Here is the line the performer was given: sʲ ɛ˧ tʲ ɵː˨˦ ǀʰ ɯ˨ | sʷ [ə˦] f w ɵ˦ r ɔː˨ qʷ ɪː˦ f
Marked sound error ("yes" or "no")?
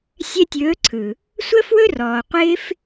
no